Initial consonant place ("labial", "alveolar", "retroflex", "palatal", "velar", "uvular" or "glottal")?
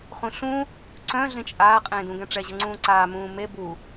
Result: uvular